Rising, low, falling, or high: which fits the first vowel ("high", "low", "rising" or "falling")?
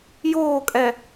falling